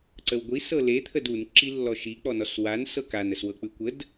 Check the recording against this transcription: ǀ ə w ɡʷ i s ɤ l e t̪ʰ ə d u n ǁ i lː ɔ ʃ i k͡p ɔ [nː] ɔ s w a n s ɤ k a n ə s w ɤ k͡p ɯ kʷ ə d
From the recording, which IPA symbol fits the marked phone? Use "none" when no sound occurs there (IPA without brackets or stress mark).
n